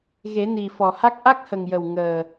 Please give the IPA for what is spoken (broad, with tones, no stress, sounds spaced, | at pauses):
ɣ e˨˩˦ n i˨˩ f ɔ˨˩ h a˦˥ k̚ ʔ a˦˥ k̚ h ə˨˩ ŋ j ə˨˩ w ŋ əː˨˩